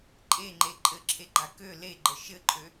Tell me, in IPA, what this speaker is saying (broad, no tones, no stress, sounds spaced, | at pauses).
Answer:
ǃʼ e ŋ͡ǃ e ǃʼ ɘ ǁʰ e ɡ͡ǃ a k ø l e ɡ͡ǃ ə ʃ ɘ ǃʼ ø